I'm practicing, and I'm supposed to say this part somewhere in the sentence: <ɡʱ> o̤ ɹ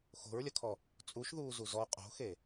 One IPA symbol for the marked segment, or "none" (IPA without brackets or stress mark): x